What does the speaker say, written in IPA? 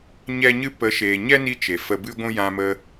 ɲ ɛ˦ ɲ ɨ˦ p ə˨˦ ʃ eː˨ ɲ ɛ˦ n i˧ t͡ʃ e˨ f ə˧ b ɨ˦ ɡʷ ũ˦ j ã˧ m ə˧

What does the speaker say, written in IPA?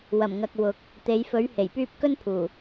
w ɐ˨˩ m ŋ ɐ˨ k̚ w ʊ˨˥ k̚ | t̪ e˨˧ j f ɵ˨˥ ɥ h e˨˩ j p yː˥ p̚ k ɵ˥ n pʰ uː˨˩

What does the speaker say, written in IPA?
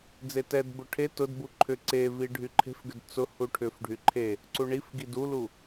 d͡z e t ɛ d b ʊ ʈʰ e t ʊ d b u ǃʰ ʏ ǀ e v i ɖʱ y ǃʰ e̤ f ɡ ʏ d t͡s ʊ h u ʈʰ ʏ f ɖʱ y ǃʰ e | ǀ u ɳ i f ɡ i d u l u

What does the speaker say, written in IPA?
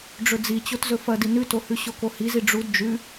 ɖ͡ʐ ɵ d͡z i t͡ɕ o t z ɵ f ɐ d i n ʉ t o h ʉ ɕ o k o h i z i ɖ͡ʐ u d d͡ʒ ʉ

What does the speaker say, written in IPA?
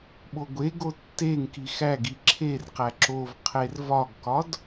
ɓ o ɡʷ e ɡ o tː e ŋ k i x æ ɡ i ǁʰ e r q æ ǁ o v qʰ e r v ɒ ɡ k ɒ d

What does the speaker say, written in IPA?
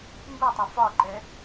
m b u tˤ u f ɒ ǃ ɛ

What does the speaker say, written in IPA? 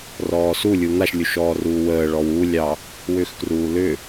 r ɔː s u lʲ u n̪ a ʃ lʲ u ʃ ɔː r uː w əː ɭ ɔ w u lʲ ɑ | w ʏ x k r uː l ʏ

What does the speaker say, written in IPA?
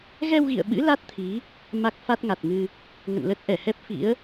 ɣ ɛ˧ w ɣ ḭ˧˨ ə̯ ɓ ɨ̰˧˥ l a˦˥ t̚ t̪ʰ i˨˦ | m a˦˥ k̚ f a˦˥ t̚ ŋ a˨˩ t̚ ŋ ɨ˧ | ŋ ə̰˧˨ n l ə˦˥ t̚ ʔ ɛ˧˩ h ɛ˦˥ p̚ f ḭ˧˥ ə̯

